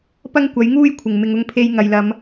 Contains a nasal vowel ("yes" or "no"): no